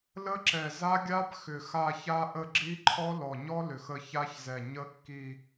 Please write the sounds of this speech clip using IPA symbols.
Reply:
lə˦˥ǁɛ˨˩za˦˥ɡʲa˦˥b xʏ˨˩xa˦˨ça˦˥ ʔə˦˨ ɡ͡ǁi˦˥ǃʰɔ˦˥ lɔ˨˩ɲɔ˦˥ lʏ˨˩x ə˦˨ ça˦˥çzɛ˨˩ ɲə˦˥kːi˦˨

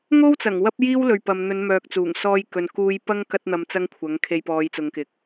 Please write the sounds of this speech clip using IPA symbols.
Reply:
ŋo˥wt͡sɐ˨˩ŋ wɐ˥p̚jiː˥wlɵ˨ɥ pɐ˨mn̪ɵ˨˧nmœː˨k̚ t͡suː˨˩ŋsɔː˧j kɵ˨n kuː˧jpɐ˥ŋ kɐ˥t̚n̪ɐ˧mt͡sɐ˥ŋkʷʰɐ˨˥ŋ kʰe˧jpɔː˨˧jt͡sʊ˨˧ŋkɪ˨k̚

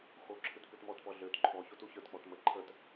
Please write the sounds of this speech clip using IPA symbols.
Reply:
xoǁʰɨt pɨtmɔtpɔ ɮøt ǃʰɔçot uçə˞tk͡pɔt mə ǃʰət

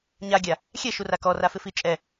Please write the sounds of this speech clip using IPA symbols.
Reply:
ɲaɡʲa | xʲɛʃura kɔrafɪfi t͡ʃʼɛ

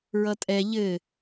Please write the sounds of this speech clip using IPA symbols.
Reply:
ɹʌtʼɛ ʎɘ

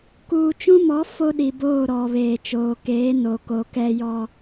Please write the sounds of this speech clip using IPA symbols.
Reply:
kuː˨t͡ʃũ˦mɔ˨˦ fo˦ɗi˨boː˦˨ ɾɔ˨βeː˨t͡ʃoː˨ keː˨˦no˨ ko˨kɛ˦ jɔ˦

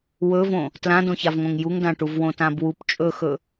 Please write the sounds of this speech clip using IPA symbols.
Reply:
wɵvõ | tlãdõçavŋõŋ juŋdãʈuv wõtãbwup t͡ʃʼɵxɵ

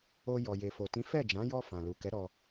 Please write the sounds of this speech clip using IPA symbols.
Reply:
o˧jɔ˨ je˨fo˨ tĩ˨˦fɛ˦˨d͡ʒã˨˦ jɔ˧ fã˨lu˨ kɛ˨˦ ɾɔ˧

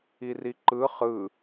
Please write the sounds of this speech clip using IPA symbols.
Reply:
iriǃɯ χɯ

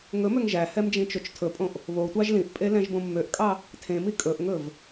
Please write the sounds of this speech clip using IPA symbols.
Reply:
ŋɵmøŋ ʒæhɛm d͡ʒĩt͡ʃot͡ʃtʰɵpʼõʔ | βotʷɑʒ lĩʔpʼe lɛ̃ʒbõmːøʔkʼɑ | tʰẽmi kʼɵʔŋɵv

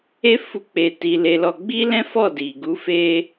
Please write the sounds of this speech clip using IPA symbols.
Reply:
e˦ fu˦k͡pe˧ ti˧le˧lɔ˧ ɡ͡bi˦lɛ̃˦fɔ˦˨di˨ ɡu˨˦fe˧

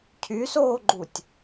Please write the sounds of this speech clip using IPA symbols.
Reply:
cʰysoːɡ͡ǃutʲ

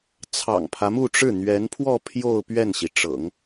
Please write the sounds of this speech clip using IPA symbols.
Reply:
t͡sʰɑ̰˨˩ŋpʰä˦mu˥˧ʈ͡ʂɻ̩˥˩ n̪ɥɛ˧˥npʰwɔ˥˧ pʰjo˥˧ʊ̯pɥɛ˥˩nɕi˩ʈ͡ʂɤ̰˨˩˦ŋ

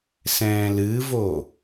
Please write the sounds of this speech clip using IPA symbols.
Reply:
sɛ̃ːlɨvo

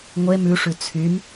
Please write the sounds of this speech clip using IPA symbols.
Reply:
ŋʷe mʉʂʉ t͡sʰym

